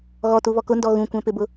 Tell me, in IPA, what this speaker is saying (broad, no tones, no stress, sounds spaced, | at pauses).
ɣ ɔ t u β ɔ k ʊ n d ɔ ɣ ũ kʷ ɛ̃ p ɪ b ʊ